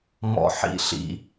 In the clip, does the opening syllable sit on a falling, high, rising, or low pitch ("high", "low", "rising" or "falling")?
low